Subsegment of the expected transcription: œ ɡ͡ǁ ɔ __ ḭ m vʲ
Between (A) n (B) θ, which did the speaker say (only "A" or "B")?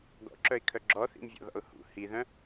B